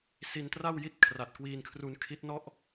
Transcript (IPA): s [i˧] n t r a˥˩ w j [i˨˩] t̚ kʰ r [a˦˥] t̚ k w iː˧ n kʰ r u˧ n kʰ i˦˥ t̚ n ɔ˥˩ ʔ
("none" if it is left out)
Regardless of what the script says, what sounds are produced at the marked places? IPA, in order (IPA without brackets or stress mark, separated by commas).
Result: i˧, i˦˥, a˨˩